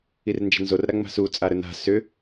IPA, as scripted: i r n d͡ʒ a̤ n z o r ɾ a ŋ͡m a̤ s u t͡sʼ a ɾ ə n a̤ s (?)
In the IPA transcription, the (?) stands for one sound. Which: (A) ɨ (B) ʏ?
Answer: B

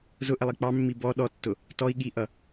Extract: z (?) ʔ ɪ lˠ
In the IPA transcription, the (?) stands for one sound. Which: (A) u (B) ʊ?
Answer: B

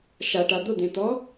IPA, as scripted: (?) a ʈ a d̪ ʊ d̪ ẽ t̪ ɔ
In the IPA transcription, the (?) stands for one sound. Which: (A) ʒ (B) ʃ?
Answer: B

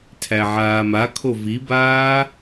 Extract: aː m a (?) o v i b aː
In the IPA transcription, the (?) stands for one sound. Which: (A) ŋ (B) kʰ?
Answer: B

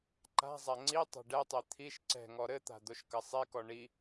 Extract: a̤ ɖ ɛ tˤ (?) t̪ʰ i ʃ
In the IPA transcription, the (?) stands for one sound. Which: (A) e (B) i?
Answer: A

